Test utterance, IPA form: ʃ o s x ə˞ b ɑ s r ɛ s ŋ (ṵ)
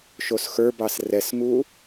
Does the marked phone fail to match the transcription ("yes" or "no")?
yes